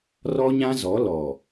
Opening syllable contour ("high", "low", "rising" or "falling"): high